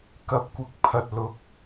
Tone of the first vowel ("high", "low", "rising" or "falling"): rising